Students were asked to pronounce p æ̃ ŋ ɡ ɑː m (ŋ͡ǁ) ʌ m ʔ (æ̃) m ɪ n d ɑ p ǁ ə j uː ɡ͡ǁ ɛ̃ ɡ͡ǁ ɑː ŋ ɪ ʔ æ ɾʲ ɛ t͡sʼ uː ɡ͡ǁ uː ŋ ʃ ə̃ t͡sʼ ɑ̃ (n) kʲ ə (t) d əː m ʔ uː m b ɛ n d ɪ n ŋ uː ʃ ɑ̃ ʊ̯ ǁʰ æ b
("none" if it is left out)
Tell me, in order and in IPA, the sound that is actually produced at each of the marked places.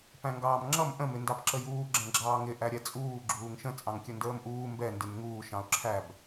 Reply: ŋ͡ǁ, ə̃, ŋ, n

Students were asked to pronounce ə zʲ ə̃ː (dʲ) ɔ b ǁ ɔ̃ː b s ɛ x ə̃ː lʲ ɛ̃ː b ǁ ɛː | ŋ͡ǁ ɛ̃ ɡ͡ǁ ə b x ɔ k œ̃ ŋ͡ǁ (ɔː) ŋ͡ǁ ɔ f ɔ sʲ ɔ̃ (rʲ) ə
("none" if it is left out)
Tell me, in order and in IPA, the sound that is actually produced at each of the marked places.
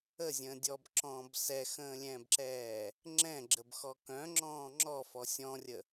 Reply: dʲ, ɔ̃ː, rʲ

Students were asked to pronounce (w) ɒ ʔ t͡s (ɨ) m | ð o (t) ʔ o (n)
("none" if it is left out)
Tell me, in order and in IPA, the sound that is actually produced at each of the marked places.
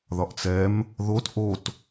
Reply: ð, ɛ, t, t

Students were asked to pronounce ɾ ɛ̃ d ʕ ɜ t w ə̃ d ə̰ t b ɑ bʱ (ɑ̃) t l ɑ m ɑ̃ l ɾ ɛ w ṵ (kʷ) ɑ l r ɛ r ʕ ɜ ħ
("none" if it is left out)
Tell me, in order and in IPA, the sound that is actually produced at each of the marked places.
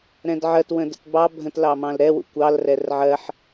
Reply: ə̃, kʷ

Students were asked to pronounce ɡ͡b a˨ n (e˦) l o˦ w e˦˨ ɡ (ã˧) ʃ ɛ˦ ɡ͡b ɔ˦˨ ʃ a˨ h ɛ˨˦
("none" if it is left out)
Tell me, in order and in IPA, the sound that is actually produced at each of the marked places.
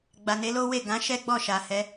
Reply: e˨˦, ã˨˦

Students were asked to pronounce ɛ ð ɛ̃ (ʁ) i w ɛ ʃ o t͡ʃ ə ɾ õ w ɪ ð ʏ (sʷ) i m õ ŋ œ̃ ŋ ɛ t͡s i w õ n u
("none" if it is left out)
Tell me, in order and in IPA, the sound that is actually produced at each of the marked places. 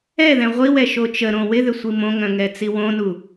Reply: ʁʷ, sʷ

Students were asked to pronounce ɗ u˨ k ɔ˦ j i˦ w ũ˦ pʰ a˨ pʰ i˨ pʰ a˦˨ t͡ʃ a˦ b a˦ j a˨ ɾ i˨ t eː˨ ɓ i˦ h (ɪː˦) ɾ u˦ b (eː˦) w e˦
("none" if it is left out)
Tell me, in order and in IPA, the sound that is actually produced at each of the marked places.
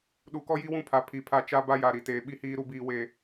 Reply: iː˦, iː˦

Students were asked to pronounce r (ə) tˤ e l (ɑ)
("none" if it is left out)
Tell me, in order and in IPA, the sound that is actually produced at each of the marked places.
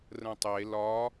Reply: ə̃, ɒ

